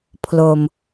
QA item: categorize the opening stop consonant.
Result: aspirated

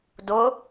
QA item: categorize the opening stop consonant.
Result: plain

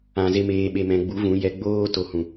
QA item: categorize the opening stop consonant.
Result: implosive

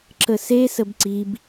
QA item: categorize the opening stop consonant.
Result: click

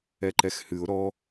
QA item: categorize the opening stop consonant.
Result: click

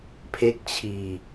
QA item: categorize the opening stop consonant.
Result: aspirated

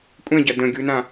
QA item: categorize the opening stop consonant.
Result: ejective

